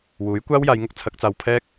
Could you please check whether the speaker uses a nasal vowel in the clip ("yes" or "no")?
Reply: no